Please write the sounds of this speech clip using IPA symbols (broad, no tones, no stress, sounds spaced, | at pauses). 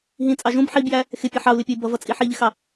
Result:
ɦ ĩ t͡sʼ ɑ ʒ ũ b ħ i b j æ | x ɪ pʲ ʌ ħ ɑ u̯ l ɪ pʲ ʊ i̯ b ʌ v ʌ t͡sʼ i ħ i ʎ ɪ x ɑ